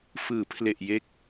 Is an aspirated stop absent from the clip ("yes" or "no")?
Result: no